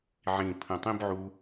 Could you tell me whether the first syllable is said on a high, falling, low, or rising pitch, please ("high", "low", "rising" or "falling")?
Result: low